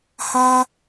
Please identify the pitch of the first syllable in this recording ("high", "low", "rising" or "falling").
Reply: high